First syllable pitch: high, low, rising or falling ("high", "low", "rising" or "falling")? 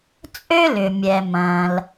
high